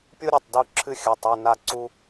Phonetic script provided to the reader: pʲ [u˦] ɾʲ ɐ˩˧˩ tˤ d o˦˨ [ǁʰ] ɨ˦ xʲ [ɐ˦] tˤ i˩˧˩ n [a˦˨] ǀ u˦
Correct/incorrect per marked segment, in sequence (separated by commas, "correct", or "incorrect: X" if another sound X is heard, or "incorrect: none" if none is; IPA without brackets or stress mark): correct, correct, incorrect: ɐ˩˧˩, correct